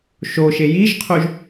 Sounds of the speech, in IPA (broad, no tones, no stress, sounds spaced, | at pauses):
ʃ o ʃ e j i ʒ qʰ o ʒ